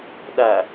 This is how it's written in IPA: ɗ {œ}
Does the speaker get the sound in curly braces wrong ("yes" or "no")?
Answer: yes